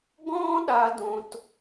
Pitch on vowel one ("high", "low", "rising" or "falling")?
high